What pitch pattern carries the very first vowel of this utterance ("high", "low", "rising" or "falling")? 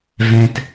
low